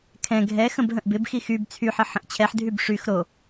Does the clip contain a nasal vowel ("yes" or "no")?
yes